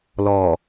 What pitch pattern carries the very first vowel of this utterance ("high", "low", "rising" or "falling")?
low